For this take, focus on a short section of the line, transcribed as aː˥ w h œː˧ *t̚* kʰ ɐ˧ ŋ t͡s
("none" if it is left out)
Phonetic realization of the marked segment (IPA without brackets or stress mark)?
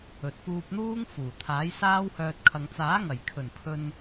t̚